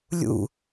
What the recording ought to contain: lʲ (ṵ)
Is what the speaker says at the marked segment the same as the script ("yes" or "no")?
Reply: yes